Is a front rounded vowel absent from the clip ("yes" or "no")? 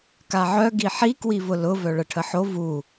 no